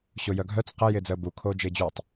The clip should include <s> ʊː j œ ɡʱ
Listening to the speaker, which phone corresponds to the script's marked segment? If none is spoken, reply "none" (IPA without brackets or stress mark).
ɕ